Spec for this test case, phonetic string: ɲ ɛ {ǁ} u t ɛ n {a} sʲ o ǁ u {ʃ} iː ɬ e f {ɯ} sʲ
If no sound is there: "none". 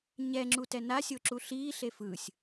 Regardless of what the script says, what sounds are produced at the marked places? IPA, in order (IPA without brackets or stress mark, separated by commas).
ŋ͡ǁ, a, ɬ, ɯ